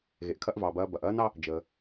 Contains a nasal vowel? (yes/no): no